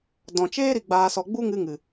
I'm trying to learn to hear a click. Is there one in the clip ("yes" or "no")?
no